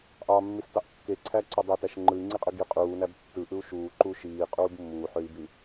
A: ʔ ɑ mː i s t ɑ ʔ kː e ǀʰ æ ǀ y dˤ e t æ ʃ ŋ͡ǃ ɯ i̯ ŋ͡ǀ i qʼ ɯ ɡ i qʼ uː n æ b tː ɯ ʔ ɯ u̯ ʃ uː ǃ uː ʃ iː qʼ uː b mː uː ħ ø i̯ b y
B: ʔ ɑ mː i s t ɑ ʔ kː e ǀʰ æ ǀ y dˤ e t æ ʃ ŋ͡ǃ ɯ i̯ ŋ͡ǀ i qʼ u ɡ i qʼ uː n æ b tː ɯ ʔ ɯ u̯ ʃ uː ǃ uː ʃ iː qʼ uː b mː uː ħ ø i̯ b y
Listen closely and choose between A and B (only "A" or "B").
A